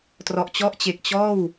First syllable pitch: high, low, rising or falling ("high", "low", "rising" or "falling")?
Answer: low